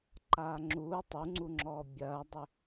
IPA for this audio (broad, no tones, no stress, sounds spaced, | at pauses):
ǃ aː ŋ͡ǁ uː tˤ u ŋ͡ǀ u ŋ͡ǁ ɔː bʲ ɐː dˤ ʏ